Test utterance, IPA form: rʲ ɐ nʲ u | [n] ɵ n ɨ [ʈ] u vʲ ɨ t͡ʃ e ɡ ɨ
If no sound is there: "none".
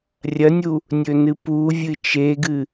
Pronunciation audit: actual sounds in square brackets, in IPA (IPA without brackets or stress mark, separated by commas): nʲ, p